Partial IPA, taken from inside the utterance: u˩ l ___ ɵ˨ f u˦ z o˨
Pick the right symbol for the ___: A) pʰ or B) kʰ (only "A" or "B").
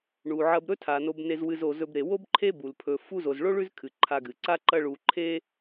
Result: A